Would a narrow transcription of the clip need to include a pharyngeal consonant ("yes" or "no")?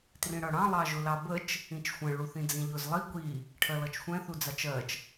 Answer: no